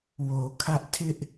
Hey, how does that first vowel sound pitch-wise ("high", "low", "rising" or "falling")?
low